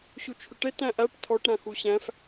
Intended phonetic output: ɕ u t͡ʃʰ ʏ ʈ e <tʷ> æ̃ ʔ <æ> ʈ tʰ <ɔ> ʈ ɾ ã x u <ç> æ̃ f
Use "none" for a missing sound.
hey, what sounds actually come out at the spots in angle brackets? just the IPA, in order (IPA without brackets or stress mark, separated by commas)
t, æ, ɔ, ɕ